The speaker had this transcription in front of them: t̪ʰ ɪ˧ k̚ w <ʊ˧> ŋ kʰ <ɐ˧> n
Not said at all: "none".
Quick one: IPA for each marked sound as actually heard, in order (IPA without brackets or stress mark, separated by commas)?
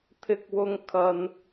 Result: ʊ˧, ɐ˧